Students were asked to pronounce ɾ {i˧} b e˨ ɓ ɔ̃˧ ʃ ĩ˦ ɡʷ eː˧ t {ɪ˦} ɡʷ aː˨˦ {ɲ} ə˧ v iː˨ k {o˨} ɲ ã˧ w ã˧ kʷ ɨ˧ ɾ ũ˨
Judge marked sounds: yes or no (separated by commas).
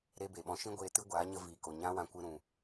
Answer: no, no, yes, yes